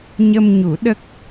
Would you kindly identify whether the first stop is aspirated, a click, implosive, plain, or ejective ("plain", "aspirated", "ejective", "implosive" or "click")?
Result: implosive